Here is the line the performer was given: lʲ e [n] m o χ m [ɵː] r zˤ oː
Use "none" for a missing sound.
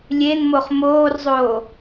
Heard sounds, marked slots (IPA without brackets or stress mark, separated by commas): n, oː